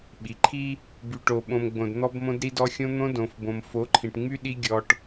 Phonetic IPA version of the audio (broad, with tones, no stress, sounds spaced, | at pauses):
ɓ i˨ ǃʰ i˦ | b y˨ ʈ o˨ ɓ õ˨ m ɡ͡b õ˨ d n̪ ɔ˦ b m õ˦ d ɾ i˦ d ɔ˦ xʲ õ˦ n̪ õ˦ d õ˨ f b õ˨ m f o˨˦ ǃʰ ĩ˨ ʈ ŋ͡m y˦ ɗ i˦ ɡʲ ɔ˦ ʈ